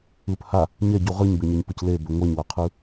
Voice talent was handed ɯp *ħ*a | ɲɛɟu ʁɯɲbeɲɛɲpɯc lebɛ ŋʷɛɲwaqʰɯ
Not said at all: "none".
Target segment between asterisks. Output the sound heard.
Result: h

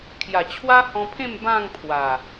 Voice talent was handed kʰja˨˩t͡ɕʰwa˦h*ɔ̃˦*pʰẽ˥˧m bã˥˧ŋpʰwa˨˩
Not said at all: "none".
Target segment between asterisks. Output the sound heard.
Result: ɔ̃˧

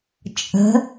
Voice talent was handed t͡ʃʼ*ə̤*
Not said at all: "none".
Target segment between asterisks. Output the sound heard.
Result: ə̤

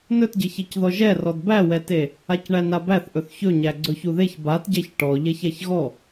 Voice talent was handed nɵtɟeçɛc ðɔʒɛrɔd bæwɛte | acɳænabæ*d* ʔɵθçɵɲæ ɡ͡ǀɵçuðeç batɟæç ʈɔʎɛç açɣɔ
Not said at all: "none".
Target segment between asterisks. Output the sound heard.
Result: θ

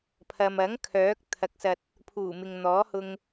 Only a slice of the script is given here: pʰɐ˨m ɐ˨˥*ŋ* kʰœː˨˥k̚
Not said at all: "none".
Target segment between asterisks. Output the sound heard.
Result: ŋ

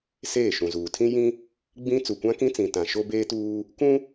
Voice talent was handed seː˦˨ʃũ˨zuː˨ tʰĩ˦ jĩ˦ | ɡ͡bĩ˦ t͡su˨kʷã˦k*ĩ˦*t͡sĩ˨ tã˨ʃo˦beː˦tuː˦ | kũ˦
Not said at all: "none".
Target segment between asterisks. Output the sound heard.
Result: ĩ˦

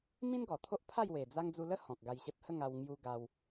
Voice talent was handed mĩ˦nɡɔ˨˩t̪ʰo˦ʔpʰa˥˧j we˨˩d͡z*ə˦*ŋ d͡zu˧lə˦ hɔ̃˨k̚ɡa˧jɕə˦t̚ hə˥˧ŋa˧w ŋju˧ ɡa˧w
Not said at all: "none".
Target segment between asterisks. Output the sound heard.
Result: a˦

